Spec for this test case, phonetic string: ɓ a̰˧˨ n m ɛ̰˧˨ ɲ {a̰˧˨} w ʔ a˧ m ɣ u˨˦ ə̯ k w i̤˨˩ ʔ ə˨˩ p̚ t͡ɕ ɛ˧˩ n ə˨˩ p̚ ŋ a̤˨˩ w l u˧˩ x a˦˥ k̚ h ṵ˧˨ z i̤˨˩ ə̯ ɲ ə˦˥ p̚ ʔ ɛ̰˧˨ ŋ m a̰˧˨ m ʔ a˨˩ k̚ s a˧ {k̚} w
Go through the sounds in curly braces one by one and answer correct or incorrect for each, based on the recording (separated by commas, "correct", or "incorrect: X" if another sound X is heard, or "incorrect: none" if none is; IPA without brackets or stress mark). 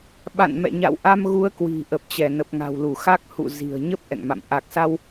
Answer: correct, incorrect: none